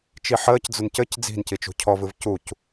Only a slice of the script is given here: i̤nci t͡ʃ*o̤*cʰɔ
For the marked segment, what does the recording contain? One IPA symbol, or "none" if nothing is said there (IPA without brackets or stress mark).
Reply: ṳ